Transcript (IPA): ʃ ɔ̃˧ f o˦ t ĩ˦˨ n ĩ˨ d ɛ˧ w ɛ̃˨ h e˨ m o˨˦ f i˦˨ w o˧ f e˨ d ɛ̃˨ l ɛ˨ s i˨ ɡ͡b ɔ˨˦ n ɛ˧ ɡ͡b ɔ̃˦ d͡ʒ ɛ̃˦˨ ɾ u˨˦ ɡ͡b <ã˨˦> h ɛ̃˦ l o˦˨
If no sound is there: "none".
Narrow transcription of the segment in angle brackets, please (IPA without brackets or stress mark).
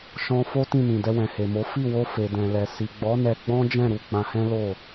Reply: ã˧